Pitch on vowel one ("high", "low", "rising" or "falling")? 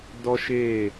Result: high